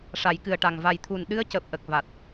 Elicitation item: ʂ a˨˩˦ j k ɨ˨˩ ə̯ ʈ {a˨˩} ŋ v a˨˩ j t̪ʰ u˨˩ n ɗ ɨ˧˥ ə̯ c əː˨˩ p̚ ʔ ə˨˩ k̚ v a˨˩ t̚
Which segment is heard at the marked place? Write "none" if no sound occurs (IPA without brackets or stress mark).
a˨˩